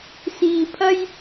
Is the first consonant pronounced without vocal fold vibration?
yes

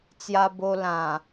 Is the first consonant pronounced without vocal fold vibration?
yes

